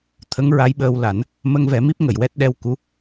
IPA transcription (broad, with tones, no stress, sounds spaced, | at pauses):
t̪ʰ ə˧˥ ŋ ɹ a˧˥ j ɓ əː˧ w l a˨˩˦ n | m ə˧ ŋ v ɛ˨˩˦ m i˦˥ p̚ ŋ ə˨˩˨ j w ɛ˦˥ t̚ ɗ ɛ˧ w k u˧˥